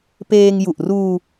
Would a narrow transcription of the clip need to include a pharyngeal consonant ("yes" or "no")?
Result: no